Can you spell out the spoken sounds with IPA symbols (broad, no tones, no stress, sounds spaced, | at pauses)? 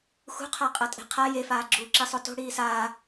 x ṳ qʰ a qʼ ɐ tʼ e̤ qʰ a j e f aː ɡ͡ǁ uː ǁ i sˤ o t o̤ ɽ iː s aː